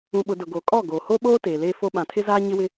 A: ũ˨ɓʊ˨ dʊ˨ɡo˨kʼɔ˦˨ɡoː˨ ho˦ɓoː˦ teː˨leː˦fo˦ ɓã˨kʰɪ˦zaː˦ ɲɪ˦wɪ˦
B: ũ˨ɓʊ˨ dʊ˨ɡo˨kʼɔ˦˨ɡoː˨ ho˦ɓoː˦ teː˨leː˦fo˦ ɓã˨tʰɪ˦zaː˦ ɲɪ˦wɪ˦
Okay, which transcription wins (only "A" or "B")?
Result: B